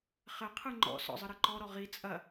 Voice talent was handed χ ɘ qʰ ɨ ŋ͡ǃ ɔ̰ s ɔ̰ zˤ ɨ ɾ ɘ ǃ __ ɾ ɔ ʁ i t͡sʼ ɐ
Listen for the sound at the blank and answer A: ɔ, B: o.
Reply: A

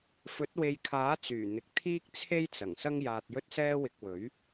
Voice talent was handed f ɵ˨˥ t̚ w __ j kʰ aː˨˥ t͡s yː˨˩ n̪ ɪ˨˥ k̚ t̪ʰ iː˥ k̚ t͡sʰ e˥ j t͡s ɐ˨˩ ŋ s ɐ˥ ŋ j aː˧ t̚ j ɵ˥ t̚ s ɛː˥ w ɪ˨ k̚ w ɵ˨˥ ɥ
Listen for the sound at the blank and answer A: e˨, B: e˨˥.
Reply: A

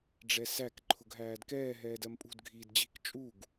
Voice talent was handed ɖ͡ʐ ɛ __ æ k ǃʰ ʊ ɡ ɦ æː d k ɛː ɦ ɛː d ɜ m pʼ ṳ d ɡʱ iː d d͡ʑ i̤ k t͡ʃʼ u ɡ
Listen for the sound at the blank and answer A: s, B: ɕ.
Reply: A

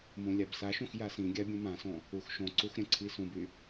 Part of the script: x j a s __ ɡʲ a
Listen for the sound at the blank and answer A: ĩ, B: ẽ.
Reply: A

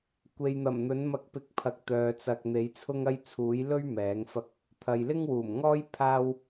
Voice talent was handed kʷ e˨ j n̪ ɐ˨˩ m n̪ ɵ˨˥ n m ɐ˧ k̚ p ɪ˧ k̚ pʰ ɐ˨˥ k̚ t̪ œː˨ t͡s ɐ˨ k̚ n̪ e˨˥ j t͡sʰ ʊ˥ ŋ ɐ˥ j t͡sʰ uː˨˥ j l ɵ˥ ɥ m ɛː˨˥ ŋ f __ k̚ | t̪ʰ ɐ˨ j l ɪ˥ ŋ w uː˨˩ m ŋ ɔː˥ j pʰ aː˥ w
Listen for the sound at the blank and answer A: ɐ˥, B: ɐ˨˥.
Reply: A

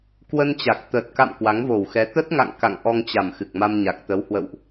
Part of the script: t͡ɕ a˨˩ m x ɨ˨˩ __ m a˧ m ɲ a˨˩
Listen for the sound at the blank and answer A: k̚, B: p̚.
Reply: A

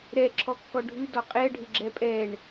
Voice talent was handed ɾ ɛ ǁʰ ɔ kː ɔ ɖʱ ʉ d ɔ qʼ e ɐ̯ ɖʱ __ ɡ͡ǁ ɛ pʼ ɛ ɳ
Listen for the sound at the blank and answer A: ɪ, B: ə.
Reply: A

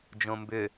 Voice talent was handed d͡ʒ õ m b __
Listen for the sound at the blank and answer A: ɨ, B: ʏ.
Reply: B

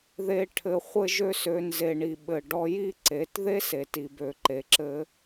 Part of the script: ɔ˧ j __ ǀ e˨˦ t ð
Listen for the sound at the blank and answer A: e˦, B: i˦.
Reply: B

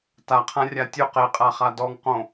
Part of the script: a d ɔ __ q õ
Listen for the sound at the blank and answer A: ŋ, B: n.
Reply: A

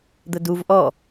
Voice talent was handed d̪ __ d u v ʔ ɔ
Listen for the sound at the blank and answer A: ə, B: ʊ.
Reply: A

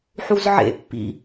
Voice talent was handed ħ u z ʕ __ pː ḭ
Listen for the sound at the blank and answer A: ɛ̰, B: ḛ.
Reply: B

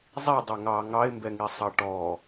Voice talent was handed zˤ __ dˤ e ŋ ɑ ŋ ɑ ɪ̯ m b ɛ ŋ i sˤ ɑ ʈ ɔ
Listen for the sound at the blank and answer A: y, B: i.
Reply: B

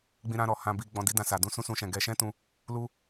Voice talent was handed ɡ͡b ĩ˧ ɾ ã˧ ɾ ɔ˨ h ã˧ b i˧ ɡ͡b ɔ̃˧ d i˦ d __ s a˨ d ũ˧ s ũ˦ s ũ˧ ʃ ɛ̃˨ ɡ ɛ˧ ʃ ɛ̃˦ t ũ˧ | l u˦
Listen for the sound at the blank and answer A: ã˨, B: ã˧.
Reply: B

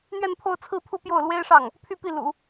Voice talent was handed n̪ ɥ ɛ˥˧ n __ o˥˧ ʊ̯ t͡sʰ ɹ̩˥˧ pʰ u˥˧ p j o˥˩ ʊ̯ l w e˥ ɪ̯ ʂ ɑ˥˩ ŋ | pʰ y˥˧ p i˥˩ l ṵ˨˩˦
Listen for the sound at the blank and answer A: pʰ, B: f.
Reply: A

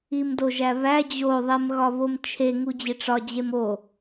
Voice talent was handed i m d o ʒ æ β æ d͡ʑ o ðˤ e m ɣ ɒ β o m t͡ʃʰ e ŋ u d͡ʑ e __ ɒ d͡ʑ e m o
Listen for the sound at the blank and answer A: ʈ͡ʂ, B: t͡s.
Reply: A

